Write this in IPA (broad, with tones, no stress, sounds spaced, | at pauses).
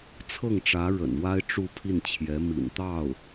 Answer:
t͡sʰ ɤ˥˩ ŋ ʈ͡ʂ ä˧˥ ɻ ə̰˨˩ n w a˥ ɪ̯ ʈ͡ʂ u˥˧ pʰ i˥˩ n t͡ɕʰ j ɛ˧˥ m ḭ˨˩ n t̪ ɑ˥˩ ʊ̯